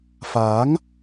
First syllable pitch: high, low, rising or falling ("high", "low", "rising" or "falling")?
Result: rising